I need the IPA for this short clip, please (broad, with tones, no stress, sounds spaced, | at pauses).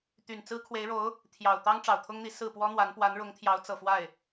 t̪ y˨˩ n t͡s ɹ̩˥ kʰ w e˧˥ ɪ̯ ɻ o˧˥ ʊ̯ | t̪ʰ j ɑ˨˩ ʊ̯ t̪ ɑ˥ ŋ ʈ͡ʂ ɑ˨˩ ʊ̯ t̪ʰ ʊ˥ ŋ n̪ i˧˥ s ɹ̩˥˩ p w ɔ˥ n̪ w a˧˥ n p w a˧˥ n ɻ ʊ˧˥ ŋ t̪ʰ j ɑ˧˥ ʊ̯ t͡s ɤ˨˩ f w a˥˩ ɪ̯